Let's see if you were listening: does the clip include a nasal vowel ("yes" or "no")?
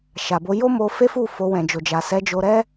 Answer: yes